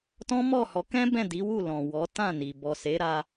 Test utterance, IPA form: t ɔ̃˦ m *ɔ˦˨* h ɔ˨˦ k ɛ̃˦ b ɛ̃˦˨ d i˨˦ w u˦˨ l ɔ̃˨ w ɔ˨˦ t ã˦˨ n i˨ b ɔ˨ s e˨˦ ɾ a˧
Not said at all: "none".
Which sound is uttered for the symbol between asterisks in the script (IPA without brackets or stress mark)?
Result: ɔ˦˨